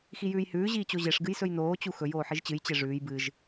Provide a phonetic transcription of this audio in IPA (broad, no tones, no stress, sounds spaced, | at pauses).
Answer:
x i j ʉː j h ʉː ʑ iː t͡ɕ o ʑ e ʂ ɡ ɨ j s ɵ j n oː t͡ɕ u x ɵ j oː ħ i ʒ t͡ɕ ɨ j t͡ɕ e ʐ ʉː j b ɨ ʒ